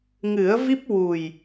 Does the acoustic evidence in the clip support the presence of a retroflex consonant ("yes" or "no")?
no